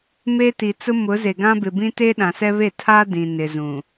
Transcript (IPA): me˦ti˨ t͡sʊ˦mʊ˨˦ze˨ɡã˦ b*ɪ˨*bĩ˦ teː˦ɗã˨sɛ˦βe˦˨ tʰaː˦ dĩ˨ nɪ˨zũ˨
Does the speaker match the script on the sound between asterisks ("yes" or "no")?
yes